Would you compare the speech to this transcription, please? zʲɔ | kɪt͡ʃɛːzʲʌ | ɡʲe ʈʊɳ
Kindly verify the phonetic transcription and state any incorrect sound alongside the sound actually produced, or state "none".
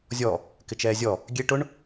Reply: ʌ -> ɔ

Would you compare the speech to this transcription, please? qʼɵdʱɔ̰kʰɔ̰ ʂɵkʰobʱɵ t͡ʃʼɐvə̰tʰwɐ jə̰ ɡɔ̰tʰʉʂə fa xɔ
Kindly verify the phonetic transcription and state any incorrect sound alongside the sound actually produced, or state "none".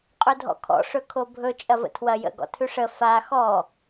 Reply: none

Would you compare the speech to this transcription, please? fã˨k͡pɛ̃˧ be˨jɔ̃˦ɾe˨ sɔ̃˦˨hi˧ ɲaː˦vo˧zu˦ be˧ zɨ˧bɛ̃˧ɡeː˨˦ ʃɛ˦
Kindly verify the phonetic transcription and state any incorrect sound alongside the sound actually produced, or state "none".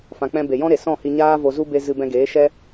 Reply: none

